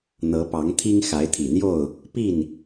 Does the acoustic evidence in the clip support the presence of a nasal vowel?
no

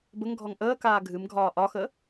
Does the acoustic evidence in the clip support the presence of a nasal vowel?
no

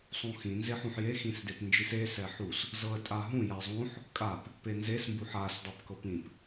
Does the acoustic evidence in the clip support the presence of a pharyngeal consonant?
yes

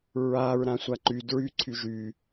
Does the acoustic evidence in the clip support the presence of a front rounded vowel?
yes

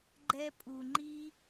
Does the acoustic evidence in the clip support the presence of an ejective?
yes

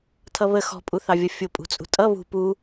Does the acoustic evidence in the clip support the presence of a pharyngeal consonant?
no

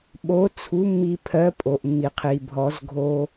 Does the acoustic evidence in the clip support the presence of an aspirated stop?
yes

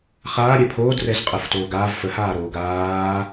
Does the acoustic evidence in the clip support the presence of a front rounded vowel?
no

